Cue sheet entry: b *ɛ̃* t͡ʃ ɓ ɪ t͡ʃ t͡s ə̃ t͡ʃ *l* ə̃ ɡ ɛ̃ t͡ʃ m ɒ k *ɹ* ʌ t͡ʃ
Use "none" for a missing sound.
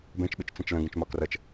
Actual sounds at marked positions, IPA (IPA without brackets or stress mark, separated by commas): ɛ̃, l, r